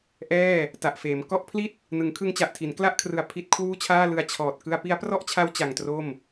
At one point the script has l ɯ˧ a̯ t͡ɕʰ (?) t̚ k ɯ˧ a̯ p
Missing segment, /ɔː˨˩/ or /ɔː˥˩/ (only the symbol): ɔː˨˩